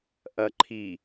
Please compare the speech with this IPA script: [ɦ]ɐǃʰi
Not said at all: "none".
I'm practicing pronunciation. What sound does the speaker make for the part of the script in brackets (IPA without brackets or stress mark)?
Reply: ʔ